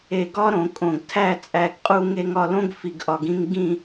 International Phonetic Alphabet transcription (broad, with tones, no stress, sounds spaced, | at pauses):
e˧˩ ɡ ɒ˥ ɾ õ˩˧ kʼ õ˧˩ ɡ tʰ æ˥˧ t͡sʼ æ˥˧ ɡ qʼ u˥ ŋ e˥ ŋ ɒ˧ l õ˥ ɡ f i˧ ɡ ʔ ɒ˧ ɡ ĩ˥ ŋ ɡ ĩ˥˧